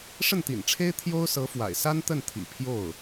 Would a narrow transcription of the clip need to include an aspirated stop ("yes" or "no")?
yes